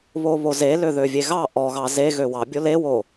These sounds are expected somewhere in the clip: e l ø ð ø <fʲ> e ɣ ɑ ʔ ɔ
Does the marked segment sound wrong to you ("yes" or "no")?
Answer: yes